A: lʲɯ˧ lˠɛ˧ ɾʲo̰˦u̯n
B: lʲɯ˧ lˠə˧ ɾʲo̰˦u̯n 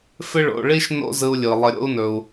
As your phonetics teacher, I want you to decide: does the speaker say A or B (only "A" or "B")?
B